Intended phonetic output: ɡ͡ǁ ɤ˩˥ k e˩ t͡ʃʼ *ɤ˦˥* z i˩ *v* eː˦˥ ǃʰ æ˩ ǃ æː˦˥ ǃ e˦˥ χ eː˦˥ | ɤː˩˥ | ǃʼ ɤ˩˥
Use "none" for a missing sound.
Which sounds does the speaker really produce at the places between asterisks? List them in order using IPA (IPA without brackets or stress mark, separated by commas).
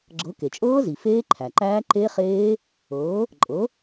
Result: ɤː˦˥, f